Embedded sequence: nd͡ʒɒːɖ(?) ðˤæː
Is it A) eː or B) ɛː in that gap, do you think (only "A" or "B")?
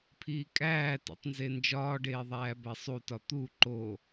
A